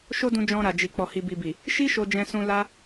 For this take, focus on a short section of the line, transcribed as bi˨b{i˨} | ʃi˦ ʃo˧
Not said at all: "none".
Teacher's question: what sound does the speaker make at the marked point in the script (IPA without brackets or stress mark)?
i˨